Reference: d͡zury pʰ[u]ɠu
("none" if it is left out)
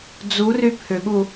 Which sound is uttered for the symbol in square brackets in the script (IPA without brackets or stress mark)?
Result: ʏ